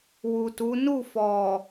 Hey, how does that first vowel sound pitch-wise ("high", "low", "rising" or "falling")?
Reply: low